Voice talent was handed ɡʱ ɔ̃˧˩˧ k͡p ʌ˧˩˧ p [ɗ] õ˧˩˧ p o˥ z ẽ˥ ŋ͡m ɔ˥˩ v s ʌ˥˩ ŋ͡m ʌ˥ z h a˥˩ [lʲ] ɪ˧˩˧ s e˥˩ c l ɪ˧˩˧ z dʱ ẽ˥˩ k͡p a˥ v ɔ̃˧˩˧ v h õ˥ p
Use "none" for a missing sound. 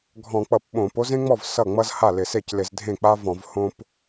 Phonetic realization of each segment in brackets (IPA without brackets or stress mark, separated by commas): ɓ, l